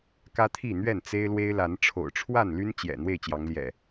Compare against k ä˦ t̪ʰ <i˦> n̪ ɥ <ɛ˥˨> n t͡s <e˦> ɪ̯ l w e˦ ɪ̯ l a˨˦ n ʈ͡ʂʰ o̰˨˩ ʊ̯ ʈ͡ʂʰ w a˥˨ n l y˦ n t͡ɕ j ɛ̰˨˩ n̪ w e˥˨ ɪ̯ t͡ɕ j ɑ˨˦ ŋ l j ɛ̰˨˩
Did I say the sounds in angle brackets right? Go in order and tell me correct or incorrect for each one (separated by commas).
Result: incorrect, correct, correct